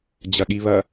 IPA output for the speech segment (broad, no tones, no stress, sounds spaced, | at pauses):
d͡ʑ ɐ ɠ i β ɐ